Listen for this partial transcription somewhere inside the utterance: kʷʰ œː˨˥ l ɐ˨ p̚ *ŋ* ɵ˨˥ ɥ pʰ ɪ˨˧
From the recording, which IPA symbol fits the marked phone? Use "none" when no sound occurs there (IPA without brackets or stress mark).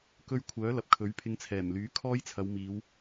kʰ